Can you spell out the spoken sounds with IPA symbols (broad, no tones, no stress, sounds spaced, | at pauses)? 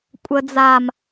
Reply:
kʷʼ ə d͡z a m